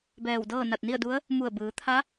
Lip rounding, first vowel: unrounded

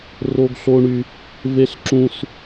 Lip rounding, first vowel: rounded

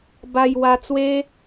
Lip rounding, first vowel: unrounded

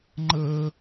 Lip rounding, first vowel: unrounded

